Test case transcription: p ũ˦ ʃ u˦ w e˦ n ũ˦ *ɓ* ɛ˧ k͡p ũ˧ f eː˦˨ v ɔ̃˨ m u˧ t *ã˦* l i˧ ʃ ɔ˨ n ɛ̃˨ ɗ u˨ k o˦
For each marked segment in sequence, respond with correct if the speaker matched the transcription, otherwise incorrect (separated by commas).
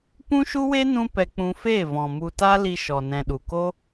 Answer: incorrect, incorrect